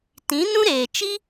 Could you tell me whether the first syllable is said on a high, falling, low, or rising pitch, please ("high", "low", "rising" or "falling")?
rising